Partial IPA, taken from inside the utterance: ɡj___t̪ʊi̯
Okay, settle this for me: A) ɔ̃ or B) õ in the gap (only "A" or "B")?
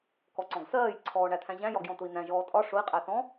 A